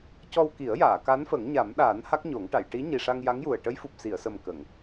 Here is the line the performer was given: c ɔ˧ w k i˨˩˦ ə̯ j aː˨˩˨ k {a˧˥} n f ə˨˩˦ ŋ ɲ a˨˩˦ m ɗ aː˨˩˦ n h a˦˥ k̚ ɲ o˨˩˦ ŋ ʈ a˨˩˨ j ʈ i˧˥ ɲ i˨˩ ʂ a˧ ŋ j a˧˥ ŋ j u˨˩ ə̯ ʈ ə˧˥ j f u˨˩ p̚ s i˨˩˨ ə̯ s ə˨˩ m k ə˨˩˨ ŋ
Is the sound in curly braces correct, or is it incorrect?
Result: correct